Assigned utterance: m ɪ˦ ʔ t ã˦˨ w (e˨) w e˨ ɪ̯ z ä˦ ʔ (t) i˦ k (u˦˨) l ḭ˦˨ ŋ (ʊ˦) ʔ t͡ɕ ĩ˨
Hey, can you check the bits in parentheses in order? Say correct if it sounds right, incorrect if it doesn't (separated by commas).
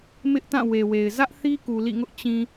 correct, incorrect, incorrect, correct